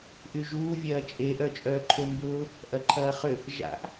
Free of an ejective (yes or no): no